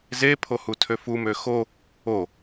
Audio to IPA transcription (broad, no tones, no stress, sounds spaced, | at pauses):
z e pʰ o h u tʰ ø f u m ø x o | o